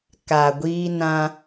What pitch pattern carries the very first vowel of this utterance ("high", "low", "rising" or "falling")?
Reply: low